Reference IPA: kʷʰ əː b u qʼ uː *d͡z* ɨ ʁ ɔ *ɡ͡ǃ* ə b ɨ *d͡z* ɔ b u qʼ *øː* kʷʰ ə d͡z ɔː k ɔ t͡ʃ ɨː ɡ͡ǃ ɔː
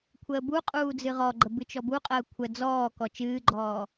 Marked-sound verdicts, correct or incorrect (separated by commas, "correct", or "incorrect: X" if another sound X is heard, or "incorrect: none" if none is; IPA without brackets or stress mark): correct, correct, incorrect: t͡ʃ, incorrect: əː